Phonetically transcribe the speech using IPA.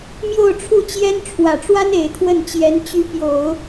m j o˥˧ ʊ̯ ʈ͡ʂʰ u˥˩ t͡ɕ j ɛ˥ n ʈ͡ʂʰ w ä˨˩ ʈ͡ʂ w a˥ n e˨˩ ɪ̯ t̪ʰ w ə˥˩ n t͡ɕ j ɛ˧˥ n t͡ɕ y˧˥ p j o˨˩˦ ʊ̯

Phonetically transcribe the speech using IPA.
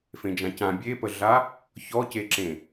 f ẽ d͡ʒ ã c ã bʲ e p ə ɮ a | ç ɔ c e ǁ ẽ

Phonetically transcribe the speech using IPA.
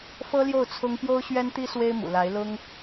f ɤ˥ l j o˥˩ ʊ̯ t͡sʰ ʊ˥ ŋ p j o˥ ʊ̯ ɕ ɥ ɛ˥ n t̪ i˥ s w e˥ ɪ̯ m ṵ˨˩ l a˧˥ ɪ̯ l ʊ˥ ŋ

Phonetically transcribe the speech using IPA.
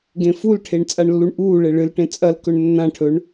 ɡ ẽ f u l ʈʰ e ɳ t͡sʼ a ɳ lː u ɳ ʔ uː ɭ e ɭ ɨ l ʈ ẽ t͡sʼ ɐ l k ɵ ɳ nː ã ʈʰ ɵ ɳ

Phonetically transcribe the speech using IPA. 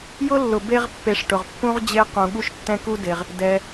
j ʊ˥ lː ʊ˨ b e˦ ʁ pː e˨ ʂ ʈ ʊ˩ ʁ pː ũ˦ ʁ d͡ʑ e˦ q ũ˨ ɠ u˥ ʃ tː ɛ̃˥ k u˥ d e˨ ʁ | d ɛ˩

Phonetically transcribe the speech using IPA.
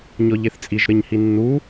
ɲ ɔ ʎ e θ t͡sʼ i ʒ ɾ ɘ ɲ h i nː u

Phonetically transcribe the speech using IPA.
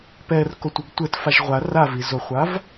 p ɛ r k o tʷ i ɡ tʷ ɘ t f a ʒ ʁʷ a r a v i z o χʷ a v

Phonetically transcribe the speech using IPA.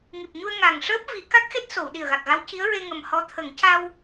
ŋ i˨˩ p̚ ɲ u˧ ə̯ ŋ a˨˩ ŋ ʂ əː˦˥ p̚ v i˨˩˦ k a˦˥ k̚ x e˦˥ t̚ s o˨˩˨ w ɗ i˨˩ ə̯ ɣ a˨˩ k̚ ɣ a˧˥ w c i˧˥ ə̯ ɹ e˧ ŋ ə˨˩ m h ɔ˧˥ t̪ʰ ə˨˩˦ ŋ c a˧ w

